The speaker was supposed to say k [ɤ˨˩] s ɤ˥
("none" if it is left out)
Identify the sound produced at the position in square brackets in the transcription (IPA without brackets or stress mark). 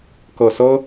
ɤ˨˩